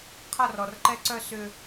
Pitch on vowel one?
falling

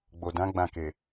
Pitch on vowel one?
low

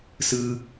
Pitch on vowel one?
high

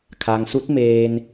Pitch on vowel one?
low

